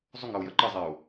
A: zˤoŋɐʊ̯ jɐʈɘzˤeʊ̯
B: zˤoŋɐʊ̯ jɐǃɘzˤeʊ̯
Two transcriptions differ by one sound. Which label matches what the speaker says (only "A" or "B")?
B